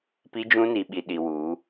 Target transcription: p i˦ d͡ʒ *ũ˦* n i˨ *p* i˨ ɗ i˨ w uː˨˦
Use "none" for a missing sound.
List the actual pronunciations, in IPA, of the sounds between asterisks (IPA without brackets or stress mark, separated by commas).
ũ˦, ɓ